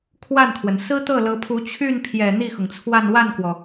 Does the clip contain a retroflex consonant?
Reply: no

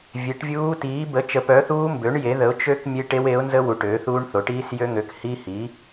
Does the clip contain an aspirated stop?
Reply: no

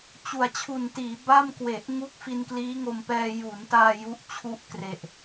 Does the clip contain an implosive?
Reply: no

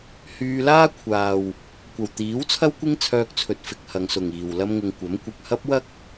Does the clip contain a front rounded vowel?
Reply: yes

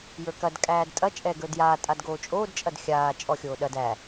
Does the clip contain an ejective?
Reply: yes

